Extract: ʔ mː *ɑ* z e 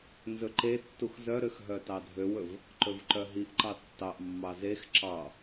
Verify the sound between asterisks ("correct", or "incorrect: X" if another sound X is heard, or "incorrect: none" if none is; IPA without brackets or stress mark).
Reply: correct